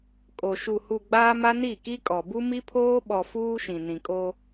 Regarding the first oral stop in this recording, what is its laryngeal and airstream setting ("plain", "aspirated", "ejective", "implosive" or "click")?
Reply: ejective